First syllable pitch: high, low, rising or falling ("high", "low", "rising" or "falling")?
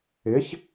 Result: rising